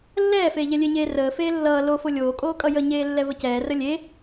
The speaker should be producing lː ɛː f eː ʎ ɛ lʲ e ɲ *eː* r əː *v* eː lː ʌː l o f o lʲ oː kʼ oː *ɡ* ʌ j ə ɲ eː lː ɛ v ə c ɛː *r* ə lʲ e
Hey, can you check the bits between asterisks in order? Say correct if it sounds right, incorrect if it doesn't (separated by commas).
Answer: correct, incorrect, incorrect, correct